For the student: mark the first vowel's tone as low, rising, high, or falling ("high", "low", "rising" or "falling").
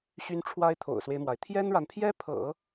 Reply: high